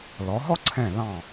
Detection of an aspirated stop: present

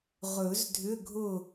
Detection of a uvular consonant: present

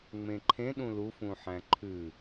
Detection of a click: present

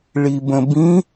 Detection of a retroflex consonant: present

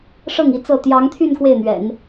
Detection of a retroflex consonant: present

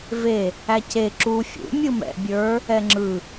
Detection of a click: present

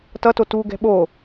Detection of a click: absent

